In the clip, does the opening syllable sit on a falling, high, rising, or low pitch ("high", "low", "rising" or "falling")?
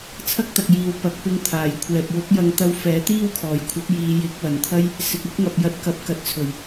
high